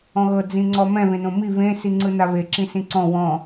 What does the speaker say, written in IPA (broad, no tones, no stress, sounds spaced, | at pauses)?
ɔ̃ ɣ ɤ d͡z ĩ ŋ͡ǀ ɔ m ɛ̃ β ẽ n õ m i β ẽ s i ŋ͡ǀ ɯ n a β e ǁ ĩ s ĩ ǀ ɔ̃ w ɔ̃